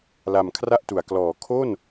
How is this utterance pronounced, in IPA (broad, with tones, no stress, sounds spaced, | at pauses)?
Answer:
l a˨˩ m kʰ r a˥˩ ʔ t u˩˦ a̯ k l ɔː˩˦ kʰ o˥˩ n